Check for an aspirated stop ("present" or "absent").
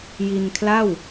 present